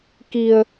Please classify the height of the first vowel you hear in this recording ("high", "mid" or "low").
high